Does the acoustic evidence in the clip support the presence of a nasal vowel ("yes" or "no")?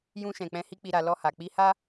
yes